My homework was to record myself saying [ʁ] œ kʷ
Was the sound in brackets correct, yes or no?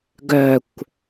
no